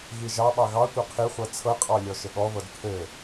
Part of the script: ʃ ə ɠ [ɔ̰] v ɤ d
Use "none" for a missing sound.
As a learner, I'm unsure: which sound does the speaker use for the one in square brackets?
ɔ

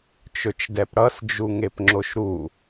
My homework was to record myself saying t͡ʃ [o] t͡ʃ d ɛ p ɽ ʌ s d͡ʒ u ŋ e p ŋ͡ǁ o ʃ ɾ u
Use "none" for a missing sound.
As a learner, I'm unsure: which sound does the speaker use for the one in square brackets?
ɵ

